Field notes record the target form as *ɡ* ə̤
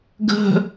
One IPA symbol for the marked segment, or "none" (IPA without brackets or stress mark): ɡ